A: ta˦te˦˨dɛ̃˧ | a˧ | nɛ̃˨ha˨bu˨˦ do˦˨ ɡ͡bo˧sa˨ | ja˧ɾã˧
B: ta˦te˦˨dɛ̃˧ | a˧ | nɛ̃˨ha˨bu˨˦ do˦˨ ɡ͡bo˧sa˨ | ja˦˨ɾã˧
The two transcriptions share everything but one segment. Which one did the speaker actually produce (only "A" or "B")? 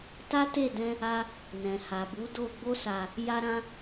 A